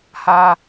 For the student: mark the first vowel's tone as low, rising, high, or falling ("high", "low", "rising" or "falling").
high